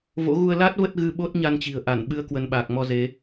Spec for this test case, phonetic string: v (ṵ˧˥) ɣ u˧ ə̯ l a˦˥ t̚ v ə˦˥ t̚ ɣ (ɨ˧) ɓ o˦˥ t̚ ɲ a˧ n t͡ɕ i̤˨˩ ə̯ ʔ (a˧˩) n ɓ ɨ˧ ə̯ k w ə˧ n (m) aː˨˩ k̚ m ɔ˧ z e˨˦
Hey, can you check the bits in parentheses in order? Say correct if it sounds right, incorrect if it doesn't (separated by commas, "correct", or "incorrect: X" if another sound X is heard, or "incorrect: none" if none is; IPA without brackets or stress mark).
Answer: incorrect: o̰˧˥, correct, correct, incorrect: ɓ